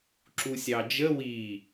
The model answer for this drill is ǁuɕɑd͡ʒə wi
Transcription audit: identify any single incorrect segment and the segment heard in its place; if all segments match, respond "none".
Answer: ɕ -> sʲ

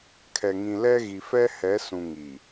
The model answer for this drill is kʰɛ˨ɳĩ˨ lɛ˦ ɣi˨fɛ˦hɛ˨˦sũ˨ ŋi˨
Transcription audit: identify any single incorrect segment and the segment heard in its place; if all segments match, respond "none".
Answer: ɳ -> ŋ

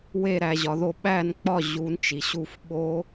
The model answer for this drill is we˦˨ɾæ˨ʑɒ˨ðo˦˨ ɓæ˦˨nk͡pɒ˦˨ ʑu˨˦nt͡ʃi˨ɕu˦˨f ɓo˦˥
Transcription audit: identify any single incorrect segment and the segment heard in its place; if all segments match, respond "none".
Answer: none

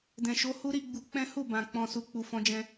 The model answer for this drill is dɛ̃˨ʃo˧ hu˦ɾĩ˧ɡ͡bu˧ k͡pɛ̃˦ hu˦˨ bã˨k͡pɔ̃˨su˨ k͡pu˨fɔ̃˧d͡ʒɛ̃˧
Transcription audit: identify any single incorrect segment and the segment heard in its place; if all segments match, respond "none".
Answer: ĩ˧ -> i˧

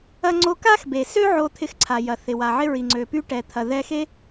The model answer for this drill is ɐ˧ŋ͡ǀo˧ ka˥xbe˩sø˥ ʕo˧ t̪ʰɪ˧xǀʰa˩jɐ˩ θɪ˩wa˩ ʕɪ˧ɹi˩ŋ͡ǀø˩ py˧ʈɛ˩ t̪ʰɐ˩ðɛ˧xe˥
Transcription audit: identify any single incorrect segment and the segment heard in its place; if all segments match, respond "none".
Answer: none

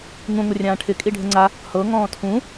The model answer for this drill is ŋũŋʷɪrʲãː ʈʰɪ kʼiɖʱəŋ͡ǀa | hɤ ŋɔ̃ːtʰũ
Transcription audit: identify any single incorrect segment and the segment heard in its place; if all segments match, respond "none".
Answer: none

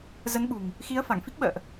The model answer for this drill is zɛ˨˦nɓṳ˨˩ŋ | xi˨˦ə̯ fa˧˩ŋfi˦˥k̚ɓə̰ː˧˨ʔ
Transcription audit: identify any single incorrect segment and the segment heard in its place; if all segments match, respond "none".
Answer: ɛ˨˦ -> ə˨˦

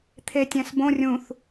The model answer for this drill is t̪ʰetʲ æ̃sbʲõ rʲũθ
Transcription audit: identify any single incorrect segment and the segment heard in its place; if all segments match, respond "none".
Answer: bʲ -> b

